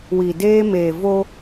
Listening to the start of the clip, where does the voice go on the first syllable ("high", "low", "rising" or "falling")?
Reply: low